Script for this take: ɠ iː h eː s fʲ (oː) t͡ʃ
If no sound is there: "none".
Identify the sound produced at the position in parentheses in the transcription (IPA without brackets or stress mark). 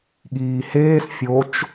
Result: o